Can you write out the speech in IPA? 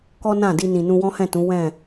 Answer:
kɔ˦nã˦˨di˧ nĩ˨nũ˧wɔ̃˦hɛ̃˦˨ tũ˨˦wɛ̃˦˨

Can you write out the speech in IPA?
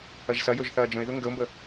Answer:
ɐʒsɐjɵʒ θɐːd͡ʒə̃ɪ̯ðɵ ŋɡəʊ̯mbə

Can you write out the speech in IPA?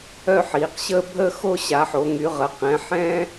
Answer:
œ˦ħiː˩˧qɕəː˦ bʱə˦xo˦ ɕa˩˧ħo˩˧ŋy˩˧ʁə˩˧ qɛ̃˩˧ħɛ̃ː˦

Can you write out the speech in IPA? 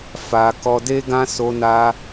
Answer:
fa˧ kɔ˧de˦ɡã˦ so˧na˧

